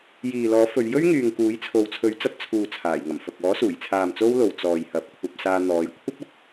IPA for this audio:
j iː˨ l ɔː˨˥ f ɵ˨˧ ɥ j ɵ˥ ɥ ŋ yː˨ ŋ k uː˨˥ j t͡sʰ o˨˧ w t͡sʰ ɵ˨˥ ɥ t͡s ɐ˨˥ p̚ t͡sʰ uː˨ t͡sʰ aː˨˩ j ŋ ɐ˨˩ m f ɐ˨ k̚ ɔː˨˥ s uː˨˩ j t͡sʰ aː˨ m t͡s o˥ w l o˨ w t͡s ɔː˨ j h ɐ˨ p̚ kʷʰ ɐ˧ p̚ s aː˧ n̪ ɔː˨˧ j kʷʰ ɐ˥ p̚ ɐ˨˥ k̚

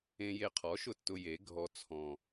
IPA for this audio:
ẽ˧ j e˧ qʰ ɔ˩˥ ʃ ʊ˥˩ tː ʊ˧ j e˩˥ ɡʱ ɔ˧ t͡sʰ ɔ̃˩

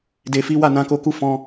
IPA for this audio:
d e˨ f i˨˦ w a˦˨ n ã˧ k o˧ k u˦ f ɔ̃˧

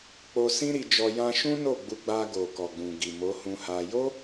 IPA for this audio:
k͡p o˧ s ĩ˦ ɾ i˧ d͡ʒ ɔ˧ j ã˧ ʃ ũ˦ n o˦˨ ɡ͡b u˧ ɡ͡b a˧ ɡ o˨ k ɔ˨ ɡ͡b ũ˨ ɡ i˨ m o˨˦ h ũ˧ h a˧ j o˦

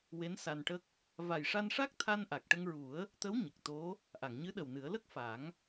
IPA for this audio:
w e˧˥ n s a˧ n ʈ ə˦˥ k̚ | v a˨˩ j ʂ a˧ n ʂ a˦˥ k̚ t̪ʰ a˧ n ʔ a˨˩ k̚ ʈ ə˧ ŋ ɹ u˨˩˦ ə̯ | t̪ ə˧˥ w ɲ ə˨˩ k̚ t̪ o˧˥ | ʔ a˨˩˨ ŋ ɲ ɨ˧˥ ɗ ə˨˩ w n ɨ˨˩˦ ə̯ l ə˦˥ k̚ f a˨˩˦ ŋ

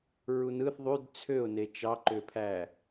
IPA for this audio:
ɹ u n ɯ θ ðˤ y d t͡sʰ ø ʊ̯ n e t͡ʃ ɑ ǃ ø pʰ æ

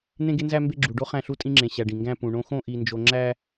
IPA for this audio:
n̪ ẽ˦ ɡ e˦ n z æ˦ m b e˦ ɡ͡ǁ u˨ ɖ o˦ χ æ̃˦˨ ɬ u˦ tʼ ĩ˦ ŋ͡ǁ ẽ˨ ɕ æ˨ ɖ ĩ˨ ŋ ɡ æ̃˦ p ũ˨ ɳ õ˦ x õ˦ ʔ i˨ n d͡ʒ o˨ ŋ͡ǁ æ˦

